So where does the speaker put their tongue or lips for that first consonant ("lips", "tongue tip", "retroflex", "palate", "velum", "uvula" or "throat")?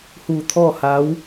throat